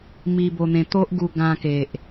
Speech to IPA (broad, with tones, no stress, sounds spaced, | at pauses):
m i˧ b o˧ n̪ ẽ˧ t̪ o˦ ʔ ɡ u˧ ɡ ã˧ k e˨ ʔ